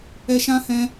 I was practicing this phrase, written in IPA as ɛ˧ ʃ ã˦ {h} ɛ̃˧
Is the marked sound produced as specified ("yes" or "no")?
yes